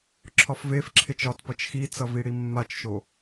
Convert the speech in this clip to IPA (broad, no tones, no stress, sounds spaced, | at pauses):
ǁʰ ɒ f v e f ǁʰ e t͡ʃ ɒ t p ʌ t͡ʃ x i t͡s ʌ v i ɽ i mː a t͡ʃ ʃ o